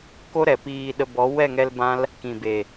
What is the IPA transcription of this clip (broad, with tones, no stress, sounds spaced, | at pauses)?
k o˦ ɾ ɛ˨ p iː˧ ɗ ə˧ b ɔ˨˦ w ɛ˦˨ ŋ ɛ˧ l b ã˦ l | k ĩ˨ b e˨